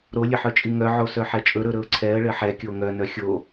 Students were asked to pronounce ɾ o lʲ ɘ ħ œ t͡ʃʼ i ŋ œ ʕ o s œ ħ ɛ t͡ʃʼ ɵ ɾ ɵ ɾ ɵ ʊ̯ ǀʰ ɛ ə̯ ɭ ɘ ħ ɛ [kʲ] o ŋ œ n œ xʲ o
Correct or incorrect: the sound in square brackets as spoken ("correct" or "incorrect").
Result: correct